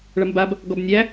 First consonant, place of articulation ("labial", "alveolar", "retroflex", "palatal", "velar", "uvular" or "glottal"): retroflex